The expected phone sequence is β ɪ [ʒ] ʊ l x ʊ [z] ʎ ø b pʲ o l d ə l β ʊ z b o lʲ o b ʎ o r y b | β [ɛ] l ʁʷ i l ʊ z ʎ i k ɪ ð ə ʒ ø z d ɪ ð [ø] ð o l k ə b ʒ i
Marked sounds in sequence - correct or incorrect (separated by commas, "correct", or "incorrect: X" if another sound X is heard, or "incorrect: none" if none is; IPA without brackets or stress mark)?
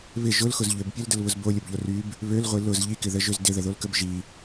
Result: correct, correct, incorrect: ø, incorrect: ə